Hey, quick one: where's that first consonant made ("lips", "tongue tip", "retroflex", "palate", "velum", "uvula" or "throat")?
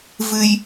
lips